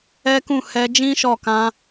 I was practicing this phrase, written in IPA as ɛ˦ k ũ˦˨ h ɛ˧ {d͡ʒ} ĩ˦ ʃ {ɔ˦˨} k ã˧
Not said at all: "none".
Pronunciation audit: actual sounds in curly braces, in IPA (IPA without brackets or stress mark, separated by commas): d͡ʒ, ɔ˦˨